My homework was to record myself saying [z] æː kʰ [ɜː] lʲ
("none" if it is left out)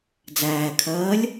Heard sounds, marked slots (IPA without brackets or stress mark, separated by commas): d͡z, ɜː